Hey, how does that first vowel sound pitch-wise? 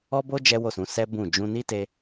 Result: high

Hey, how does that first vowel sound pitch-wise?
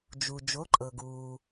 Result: low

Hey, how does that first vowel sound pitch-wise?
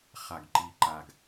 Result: low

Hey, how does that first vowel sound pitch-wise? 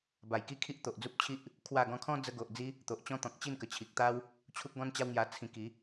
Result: low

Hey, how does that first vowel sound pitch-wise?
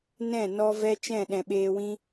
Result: falling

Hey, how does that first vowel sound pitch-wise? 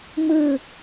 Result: falling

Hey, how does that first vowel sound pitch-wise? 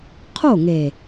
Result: falling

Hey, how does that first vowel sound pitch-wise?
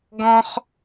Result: high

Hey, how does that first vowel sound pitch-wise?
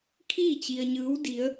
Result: falling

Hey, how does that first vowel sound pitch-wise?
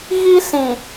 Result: high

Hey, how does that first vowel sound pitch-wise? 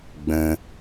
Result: low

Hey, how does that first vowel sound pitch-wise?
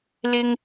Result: low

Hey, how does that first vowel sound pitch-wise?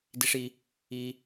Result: high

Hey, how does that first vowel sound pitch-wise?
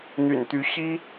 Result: low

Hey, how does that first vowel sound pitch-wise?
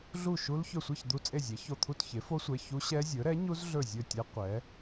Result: falling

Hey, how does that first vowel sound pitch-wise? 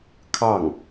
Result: falling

